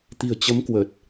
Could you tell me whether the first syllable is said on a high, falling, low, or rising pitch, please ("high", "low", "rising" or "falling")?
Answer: low